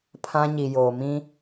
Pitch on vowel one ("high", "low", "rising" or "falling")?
high